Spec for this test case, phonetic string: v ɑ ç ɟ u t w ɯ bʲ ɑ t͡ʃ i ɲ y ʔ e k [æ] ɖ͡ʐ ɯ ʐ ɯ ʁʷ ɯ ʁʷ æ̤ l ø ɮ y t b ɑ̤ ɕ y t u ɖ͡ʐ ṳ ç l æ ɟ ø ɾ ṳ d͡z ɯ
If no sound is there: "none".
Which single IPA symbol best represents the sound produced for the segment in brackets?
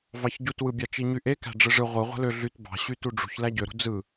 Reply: æ̤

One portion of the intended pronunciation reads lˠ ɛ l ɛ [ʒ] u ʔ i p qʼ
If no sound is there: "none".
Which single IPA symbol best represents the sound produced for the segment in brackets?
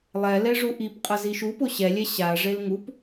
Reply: ʐ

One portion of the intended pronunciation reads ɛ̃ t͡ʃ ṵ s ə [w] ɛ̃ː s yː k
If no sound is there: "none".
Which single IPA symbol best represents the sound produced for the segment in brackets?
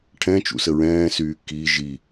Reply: ɹ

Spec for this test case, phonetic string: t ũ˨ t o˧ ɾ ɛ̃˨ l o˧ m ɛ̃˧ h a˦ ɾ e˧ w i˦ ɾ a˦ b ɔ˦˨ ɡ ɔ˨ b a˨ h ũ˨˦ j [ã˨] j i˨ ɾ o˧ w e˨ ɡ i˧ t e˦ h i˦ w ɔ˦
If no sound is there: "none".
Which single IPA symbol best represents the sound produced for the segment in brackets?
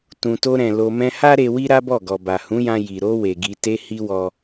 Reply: ã˧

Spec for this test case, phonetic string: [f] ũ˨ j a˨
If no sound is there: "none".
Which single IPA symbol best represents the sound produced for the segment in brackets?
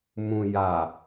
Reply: m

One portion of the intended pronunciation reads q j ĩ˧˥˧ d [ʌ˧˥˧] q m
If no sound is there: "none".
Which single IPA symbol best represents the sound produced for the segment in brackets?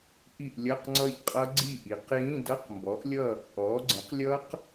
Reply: ʌ˧˥˧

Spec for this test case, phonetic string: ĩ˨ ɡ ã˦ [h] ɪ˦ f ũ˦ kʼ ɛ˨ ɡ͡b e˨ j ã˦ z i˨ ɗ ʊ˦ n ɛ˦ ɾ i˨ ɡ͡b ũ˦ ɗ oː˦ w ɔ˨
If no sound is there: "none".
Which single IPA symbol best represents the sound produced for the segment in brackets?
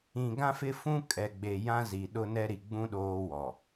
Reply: f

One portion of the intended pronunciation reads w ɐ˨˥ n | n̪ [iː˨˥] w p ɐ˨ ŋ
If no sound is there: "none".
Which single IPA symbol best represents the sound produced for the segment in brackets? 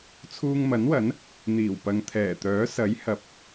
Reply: iː˨˩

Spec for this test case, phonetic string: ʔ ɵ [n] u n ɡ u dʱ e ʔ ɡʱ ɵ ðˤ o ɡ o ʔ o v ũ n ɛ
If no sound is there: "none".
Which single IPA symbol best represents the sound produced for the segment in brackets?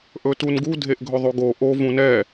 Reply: t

